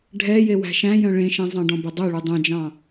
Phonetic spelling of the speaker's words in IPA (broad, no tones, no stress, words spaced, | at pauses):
ɖʱɛ jewæ̤ʃæ̃jœ̃ ɭẽʃẽ zˤɑ̃ɖɔ̃bɵdˤø ɭudˤœ̃d͡ʒɑ̃